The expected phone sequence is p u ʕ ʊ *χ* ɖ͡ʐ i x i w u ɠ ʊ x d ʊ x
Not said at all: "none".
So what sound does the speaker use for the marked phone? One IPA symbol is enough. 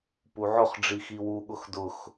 χ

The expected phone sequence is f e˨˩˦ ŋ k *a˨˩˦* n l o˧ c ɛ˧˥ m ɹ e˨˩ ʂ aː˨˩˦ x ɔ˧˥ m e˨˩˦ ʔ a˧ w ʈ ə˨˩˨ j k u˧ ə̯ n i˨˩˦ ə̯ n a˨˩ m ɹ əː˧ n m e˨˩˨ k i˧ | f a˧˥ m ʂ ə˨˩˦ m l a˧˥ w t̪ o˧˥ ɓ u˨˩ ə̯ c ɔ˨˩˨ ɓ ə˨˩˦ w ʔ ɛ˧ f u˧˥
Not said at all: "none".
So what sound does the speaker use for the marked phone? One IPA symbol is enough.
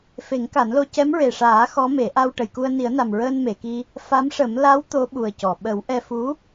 a˨˩˦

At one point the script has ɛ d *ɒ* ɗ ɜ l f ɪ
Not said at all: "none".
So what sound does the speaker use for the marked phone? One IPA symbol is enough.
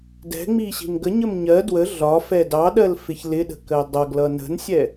ɑ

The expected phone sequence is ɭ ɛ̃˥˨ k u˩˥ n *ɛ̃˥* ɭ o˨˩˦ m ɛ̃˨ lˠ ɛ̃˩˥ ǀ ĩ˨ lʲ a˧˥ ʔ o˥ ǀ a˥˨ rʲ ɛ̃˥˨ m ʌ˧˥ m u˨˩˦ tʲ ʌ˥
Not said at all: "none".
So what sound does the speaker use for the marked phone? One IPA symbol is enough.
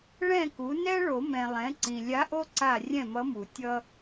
ɛ˥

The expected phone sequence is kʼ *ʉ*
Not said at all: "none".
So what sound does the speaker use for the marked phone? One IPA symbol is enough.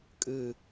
ɨ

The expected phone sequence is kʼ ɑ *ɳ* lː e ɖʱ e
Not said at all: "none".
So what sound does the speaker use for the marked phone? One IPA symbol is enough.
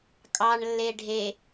ɳ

